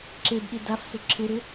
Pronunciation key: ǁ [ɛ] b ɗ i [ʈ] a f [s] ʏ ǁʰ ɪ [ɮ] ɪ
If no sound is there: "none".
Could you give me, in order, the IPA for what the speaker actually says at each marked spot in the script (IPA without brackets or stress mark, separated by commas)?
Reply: e, d, s, ɾ